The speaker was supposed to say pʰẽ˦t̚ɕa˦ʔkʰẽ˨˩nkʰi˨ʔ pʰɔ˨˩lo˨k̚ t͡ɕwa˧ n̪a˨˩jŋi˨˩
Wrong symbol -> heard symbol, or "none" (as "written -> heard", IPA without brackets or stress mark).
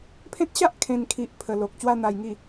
ɔ˨˩ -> ə˨˩